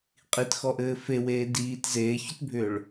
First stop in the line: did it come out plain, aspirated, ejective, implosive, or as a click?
ejective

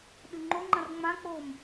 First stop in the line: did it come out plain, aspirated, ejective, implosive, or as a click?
implosive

